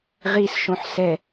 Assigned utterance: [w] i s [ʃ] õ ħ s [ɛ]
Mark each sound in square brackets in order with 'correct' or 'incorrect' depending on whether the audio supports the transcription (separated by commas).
incorrect, correct, correct